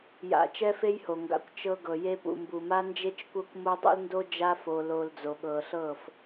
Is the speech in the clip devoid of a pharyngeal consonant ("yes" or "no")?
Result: yes